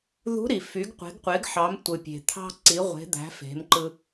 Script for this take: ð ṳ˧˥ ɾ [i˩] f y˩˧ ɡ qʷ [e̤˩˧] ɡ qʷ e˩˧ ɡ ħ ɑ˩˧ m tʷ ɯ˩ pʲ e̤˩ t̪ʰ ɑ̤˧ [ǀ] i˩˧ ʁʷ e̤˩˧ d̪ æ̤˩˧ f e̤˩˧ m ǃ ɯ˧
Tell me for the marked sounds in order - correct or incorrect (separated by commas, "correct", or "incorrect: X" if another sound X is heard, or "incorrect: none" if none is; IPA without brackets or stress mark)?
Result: correct, correct, correct